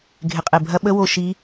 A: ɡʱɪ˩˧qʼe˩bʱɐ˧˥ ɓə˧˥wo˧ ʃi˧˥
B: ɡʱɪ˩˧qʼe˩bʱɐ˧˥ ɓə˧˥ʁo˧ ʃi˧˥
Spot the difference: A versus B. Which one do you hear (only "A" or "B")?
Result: A